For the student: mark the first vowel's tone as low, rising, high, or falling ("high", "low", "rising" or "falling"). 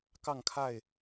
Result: falling